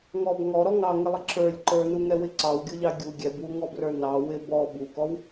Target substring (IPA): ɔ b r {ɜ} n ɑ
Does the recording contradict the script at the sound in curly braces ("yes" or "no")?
yes